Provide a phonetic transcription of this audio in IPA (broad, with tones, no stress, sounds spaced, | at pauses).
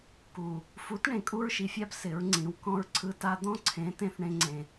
k u˨ | f u˨˦ t ɳ ẽ˨ kʼ u˦ ɹ ʃ i˨ fʲ a˦ b s ɪ˨˦ ɹ ŋ͡ǀ ĩ˨˦ w k ɔ̃˦ ɹ ǀʰ ɯ˦ t a˦ d̪ ɔ̃˦ ǀʰ ẽ˨˦ t ẽ˦ θ ɳ ẽ˦ ŋ͡ǀ ẽ˦